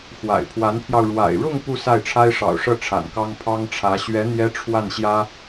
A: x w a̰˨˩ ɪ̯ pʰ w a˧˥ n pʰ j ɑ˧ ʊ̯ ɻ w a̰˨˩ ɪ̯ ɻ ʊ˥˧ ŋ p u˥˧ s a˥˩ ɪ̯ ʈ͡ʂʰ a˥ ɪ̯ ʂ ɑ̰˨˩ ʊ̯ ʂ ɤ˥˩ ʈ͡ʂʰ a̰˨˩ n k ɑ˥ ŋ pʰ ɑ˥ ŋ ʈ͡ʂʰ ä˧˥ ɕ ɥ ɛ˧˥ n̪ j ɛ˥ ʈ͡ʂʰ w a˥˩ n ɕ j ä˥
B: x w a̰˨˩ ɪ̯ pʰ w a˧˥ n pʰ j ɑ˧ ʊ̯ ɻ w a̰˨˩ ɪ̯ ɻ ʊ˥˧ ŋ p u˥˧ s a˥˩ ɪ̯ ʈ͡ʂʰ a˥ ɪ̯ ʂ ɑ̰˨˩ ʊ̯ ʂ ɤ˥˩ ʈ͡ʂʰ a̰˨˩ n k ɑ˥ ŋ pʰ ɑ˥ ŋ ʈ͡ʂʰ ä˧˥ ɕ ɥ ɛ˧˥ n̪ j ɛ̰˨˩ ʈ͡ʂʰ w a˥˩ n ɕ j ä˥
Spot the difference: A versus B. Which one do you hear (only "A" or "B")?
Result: A